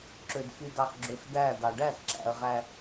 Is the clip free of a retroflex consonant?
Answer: no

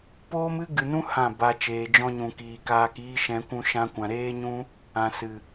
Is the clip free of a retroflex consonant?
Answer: yes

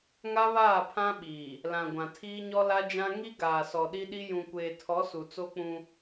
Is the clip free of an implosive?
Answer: no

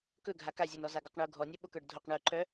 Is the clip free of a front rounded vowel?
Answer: no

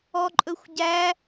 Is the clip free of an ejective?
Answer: no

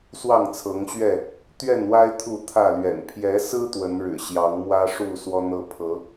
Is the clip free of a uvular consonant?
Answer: yes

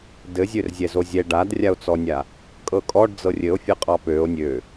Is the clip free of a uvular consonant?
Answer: no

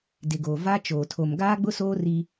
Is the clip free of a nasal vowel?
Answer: yes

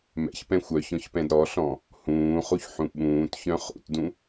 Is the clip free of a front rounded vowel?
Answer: no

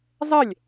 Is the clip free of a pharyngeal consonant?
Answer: yes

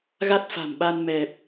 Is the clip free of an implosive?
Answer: no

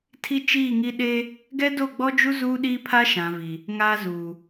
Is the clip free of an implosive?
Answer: no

